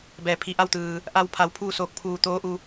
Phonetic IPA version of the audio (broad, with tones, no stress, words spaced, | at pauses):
bɛː˩pʰi˧˩ʔa˥˨wt̪ɯː˩ | ʔa˧wpʰa˩˧w pʰuː˥˨soː˧˩k̚pʰuː˧˩t̪oː˧˥ ʔu˩˧